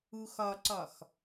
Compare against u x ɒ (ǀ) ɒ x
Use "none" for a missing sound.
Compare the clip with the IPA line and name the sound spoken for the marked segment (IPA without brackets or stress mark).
ǀ